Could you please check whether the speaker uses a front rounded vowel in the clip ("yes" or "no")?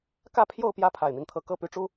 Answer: yes